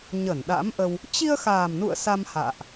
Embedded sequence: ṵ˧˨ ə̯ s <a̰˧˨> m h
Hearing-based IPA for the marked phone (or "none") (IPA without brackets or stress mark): a˧